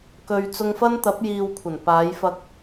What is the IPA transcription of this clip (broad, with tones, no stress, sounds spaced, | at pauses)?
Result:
k ɵ˧ ɥ t͡s ʊ˧ ŋ f ɐ˥ n t̪ ɐ˨˥ p̚ j iː˧ w kʷʰ ɐ˨˩ n p aː˨˧ j f ɐ˧ k̚